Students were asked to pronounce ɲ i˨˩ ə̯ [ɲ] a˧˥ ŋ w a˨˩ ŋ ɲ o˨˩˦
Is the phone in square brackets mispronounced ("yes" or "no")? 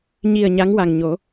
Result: no